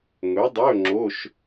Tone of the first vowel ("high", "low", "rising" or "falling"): rising